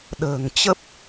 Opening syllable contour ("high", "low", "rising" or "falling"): low